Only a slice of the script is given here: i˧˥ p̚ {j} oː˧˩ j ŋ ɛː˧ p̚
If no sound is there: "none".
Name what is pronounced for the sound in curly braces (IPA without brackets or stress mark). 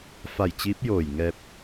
j